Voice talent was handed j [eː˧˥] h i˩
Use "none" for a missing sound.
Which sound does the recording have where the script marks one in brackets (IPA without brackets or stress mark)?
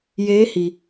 eː˧˥